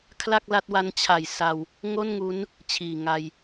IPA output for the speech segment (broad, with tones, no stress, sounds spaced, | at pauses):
kʰ l a˥˩ k̚ l a˦˥ t̚ w a˦˥ n t͡ɕʰ a˨˩ j s a˧ w | ŋ o˥˩ n ŋ u˦˥ n | t͡ɕʰ iː˨˩ ŋ a˧ j